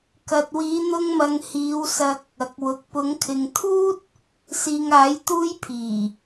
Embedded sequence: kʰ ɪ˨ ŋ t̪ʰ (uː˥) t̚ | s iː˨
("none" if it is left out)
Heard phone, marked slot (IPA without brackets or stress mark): uː˥